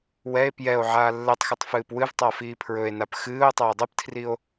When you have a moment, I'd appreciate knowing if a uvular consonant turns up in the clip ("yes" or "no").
no